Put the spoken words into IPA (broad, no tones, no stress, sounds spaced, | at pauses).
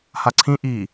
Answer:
h a ǀʰ ĩ ʔ i